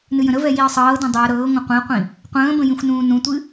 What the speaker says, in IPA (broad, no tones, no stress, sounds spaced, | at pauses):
n ɨ j ə̃ ɾ ə v ɛ j i ə̯ sˤ ɤː d õ dˤ u ə̯ ɾ ɤː ŋʷ ə̃ qʷ ĩ ə̯ qʷ ĩ | qʷ ə̃ː b ə̃ j ĩ xʷ n ũː n ũ tʷ ɨ